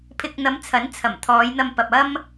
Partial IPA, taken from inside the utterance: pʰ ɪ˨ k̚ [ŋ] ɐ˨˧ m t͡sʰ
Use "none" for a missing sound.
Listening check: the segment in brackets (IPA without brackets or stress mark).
n̪